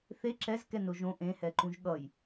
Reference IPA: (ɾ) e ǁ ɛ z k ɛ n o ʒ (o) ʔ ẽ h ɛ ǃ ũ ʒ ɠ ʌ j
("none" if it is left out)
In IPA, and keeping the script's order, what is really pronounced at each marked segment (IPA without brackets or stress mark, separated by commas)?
θ, õ